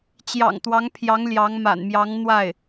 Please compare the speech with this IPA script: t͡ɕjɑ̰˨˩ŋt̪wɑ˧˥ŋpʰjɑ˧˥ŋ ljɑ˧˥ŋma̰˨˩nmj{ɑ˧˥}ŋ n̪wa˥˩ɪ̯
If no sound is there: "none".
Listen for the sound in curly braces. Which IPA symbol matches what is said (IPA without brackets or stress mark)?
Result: ɑ˧˥